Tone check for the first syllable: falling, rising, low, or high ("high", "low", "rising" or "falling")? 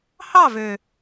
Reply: falling